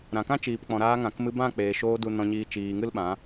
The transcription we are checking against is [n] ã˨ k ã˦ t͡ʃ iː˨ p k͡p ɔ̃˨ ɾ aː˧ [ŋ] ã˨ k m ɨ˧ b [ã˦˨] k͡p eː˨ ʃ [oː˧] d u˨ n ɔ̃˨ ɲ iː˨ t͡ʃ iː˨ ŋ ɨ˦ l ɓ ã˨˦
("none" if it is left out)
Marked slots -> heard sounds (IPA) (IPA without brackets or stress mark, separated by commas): ɾ, ŋ, ã˦˨, oː˧